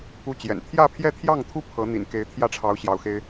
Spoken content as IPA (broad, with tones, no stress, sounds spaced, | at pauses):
u˥ t͡ɕ j ɛ̰˨˩ n t̪ʰ j ä˥˧ pʰ j ɛ˥˧ t̪ʰ j ɑ˥˩ ŋ t̪ʰ u˥ pʰ ɤ˧˥ n̪ ḭ˨˩ n k e˧˥ ɪ̯ t̪ʰ j ä˥ ʈ͡ʂʰ ɑ˧˥ ʊ̯ ɕ j ɑ˧˥ ʊ̯ x e˥ ɪ̯